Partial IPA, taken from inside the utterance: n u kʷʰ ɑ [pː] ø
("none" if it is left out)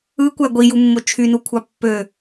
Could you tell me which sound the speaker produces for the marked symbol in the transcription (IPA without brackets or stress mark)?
pː